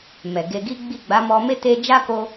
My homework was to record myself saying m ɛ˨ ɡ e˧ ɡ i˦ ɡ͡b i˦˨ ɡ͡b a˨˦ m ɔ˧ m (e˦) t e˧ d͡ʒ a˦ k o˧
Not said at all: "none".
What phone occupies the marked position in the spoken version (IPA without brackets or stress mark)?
e˦